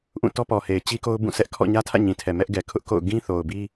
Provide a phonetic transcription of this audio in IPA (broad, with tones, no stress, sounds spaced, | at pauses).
ʔ ũ˦˨ t ɔ˦ p ɔ˨ h e˨ ɪ̯ t͡ɕ i˦ k o˦ ʊ̯ b ũ˦˨ s ɛ˦ ʔ kʰ ɔ̰˦˨ ɲ ä˦ tʰ ä̰˦˨ ɲ ĩ˨ tʰ ɛ˨ m ɛ˦ ʔ ɡ ɛ˨ kʰ ʊ˦ ʔ k o̰˦˨ ʊ̯ ɡ ĩ˦ θ o˨ ʊ̯ b i˦